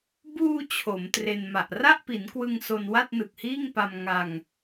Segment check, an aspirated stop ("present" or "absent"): present